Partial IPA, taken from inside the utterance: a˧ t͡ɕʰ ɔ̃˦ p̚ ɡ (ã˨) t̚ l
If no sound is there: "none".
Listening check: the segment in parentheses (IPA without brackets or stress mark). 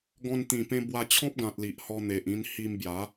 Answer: ã˨